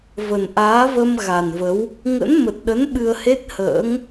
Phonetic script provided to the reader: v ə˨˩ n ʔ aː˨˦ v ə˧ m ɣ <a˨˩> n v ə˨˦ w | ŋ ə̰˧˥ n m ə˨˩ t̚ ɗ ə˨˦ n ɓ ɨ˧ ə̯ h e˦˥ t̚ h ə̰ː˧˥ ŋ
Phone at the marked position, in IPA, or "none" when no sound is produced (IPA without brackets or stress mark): a˨˩